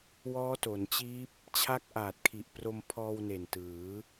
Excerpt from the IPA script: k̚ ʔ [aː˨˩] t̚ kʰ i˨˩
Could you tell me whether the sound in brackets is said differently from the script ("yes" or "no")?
no